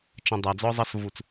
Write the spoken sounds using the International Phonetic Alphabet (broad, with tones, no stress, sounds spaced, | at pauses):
t͡ʃ ə̃˧ dˤ æ˨ d͡z ɔ˦ zˤ ʌ˦ s v u˦˨ t͡s